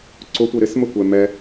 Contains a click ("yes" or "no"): yes